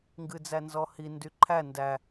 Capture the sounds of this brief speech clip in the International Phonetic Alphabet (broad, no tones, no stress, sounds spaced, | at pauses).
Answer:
ŋ ɡ ɨ d͡z æ n z ɔ h i n d y ǃʰ æ n d æ